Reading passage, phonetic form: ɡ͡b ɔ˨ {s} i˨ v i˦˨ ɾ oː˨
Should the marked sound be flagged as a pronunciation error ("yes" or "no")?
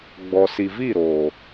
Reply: no